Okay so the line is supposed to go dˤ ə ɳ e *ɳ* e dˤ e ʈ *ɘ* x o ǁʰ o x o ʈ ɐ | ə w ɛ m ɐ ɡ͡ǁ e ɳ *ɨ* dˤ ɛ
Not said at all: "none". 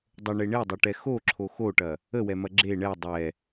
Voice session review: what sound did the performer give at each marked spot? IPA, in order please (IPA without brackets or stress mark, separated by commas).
ɳ, ɛ, ɛ